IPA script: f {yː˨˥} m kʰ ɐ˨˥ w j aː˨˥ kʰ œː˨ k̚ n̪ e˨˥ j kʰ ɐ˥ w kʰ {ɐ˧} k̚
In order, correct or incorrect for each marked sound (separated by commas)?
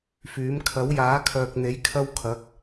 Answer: correct, incorrect